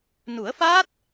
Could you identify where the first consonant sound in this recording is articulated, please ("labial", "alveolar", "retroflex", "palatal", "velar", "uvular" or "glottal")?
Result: alveolar